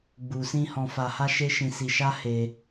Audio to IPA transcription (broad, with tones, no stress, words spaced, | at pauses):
ɡ͡bu˨sĩ˧ hɔ̃˨fa˨ha˧ ʃe˦ʃĩ˧si˧ ʃa˦he˧